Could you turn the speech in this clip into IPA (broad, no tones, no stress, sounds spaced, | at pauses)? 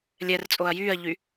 lʲ ɛ r t͡sʼ o ɐ̯ j yː ɐ̯ ʎ y